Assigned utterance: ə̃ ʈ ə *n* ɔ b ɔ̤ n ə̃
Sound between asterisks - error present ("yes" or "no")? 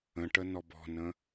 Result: no